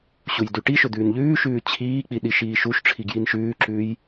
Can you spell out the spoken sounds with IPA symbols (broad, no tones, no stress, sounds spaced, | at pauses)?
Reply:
ɕ u j d ʉ ʈ i ʃ ɵ d̪ ʉː n ʎ ʉː ʃ ʉː t͡ɕʰ iː k͡p i ɗ i ʃ iː ʃ u ʃ ʈ͡ʂʰ i ɡ j i n ʃ ʉː ǁ ʉː j